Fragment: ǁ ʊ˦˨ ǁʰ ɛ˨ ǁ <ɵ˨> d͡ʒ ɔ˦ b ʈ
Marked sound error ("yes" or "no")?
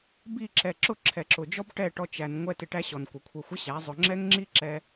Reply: yes